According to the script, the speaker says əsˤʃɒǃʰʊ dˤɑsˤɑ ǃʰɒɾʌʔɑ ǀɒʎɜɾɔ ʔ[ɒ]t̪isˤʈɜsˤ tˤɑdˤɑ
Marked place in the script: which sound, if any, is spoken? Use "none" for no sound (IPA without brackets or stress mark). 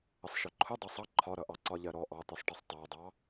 ɑ